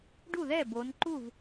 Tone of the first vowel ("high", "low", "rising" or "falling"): falling